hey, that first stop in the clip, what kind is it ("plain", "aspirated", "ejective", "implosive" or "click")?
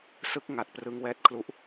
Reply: plain